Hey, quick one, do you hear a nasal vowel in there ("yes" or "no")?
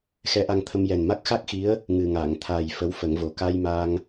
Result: no